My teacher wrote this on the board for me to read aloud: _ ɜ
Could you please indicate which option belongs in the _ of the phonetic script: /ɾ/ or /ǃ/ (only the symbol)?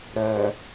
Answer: ɾ